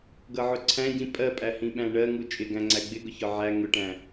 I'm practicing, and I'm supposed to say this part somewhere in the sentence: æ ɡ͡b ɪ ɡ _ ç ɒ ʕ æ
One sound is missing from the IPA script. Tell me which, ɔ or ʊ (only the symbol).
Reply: ʊ